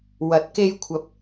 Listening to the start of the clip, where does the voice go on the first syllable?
rising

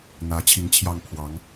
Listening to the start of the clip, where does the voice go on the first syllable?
rising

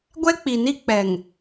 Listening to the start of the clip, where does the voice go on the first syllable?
high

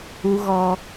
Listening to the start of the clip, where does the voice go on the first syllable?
high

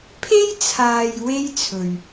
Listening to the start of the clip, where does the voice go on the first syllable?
high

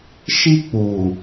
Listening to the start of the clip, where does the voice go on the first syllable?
high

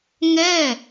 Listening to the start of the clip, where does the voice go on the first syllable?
falling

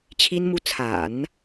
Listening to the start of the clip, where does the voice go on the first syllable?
high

